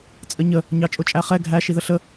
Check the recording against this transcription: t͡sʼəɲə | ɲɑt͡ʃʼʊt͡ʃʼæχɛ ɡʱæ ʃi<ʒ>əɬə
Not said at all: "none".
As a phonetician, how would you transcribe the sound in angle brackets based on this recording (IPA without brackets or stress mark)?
ð